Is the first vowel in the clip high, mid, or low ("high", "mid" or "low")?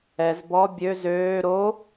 mid